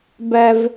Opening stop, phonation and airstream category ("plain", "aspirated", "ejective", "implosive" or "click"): plain